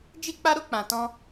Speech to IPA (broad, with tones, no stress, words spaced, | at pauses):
d͡ʒi˦k͡pa˦ɾo˦ k͡pã˧tɔ̃˦